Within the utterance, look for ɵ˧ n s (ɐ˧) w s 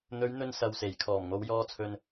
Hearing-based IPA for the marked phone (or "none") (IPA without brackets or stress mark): ɐ˨